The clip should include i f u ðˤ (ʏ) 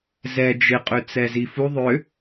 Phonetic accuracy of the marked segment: correct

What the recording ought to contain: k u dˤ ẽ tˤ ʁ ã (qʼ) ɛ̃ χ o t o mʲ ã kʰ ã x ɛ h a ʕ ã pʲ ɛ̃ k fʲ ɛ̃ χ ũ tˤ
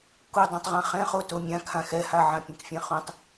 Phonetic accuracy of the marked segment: incorrect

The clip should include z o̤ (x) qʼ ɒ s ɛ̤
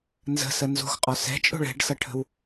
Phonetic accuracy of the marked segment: correct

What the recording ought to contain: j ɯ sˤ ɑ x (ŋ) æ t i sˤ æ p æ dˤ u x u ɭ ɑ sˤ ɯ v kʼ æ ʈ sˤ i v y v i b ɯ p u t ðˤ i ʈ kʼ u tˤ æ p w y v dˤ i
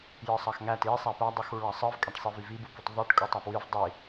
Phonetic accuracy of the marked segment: correct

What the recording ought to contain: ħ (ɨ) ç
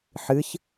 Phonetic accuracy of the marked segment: correct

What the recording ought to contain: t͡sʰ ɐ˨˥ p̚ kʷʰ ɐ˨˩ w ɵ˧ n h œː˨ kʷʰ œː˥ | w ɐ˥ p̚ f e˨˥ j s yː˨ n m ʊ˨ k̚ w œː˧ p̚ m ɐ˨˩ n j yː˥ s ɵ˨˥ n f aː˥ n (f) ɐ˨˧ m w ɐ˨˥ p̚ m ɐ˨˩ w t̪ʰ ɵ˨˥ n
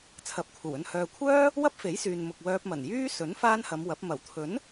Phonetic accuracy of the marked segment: incorrect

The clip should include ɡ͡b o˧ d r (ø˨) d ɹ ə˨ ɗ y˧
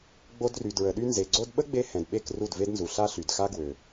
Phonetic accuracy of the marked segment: incorrect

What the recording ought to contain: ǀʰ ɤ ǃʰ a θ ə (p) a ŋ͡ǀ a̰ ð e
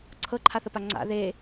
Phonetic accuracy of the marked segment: correct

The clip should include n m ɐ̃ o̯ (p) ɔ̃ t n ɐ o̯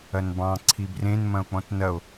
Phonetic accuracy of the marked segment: incorrect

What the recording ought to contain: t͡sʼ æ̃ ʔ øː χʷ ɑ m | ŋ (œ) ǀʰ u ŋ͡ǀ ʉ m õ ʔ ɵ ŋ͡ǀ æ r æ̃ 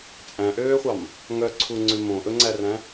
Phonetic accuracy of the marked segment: correct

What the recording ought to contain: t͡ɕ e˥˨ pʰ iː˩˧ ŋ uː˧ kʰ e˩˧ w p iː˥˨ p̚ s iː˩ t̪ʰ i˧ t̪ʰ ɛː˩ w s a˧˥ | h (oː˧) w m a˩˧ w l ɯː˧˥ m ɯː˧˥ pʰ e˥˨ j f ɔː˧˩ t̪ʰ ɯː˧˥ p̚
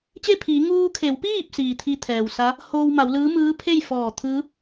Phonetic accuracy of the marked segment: correct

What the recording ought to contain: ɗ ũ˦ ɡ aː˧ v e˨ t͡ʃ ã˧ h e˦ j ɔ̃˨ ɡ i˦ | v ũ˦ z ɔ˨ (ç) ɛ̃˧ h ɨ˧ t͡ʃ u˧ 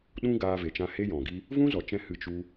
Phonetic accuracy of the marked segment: incorrect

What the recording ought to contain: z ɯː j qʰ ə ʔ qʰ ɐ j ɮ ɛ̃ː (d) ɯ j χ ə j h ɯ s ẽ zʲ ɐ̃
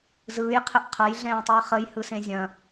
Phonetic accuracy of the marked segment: incorrect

